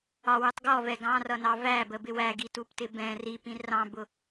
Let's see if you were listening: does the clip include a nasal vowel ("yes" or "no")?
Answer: yes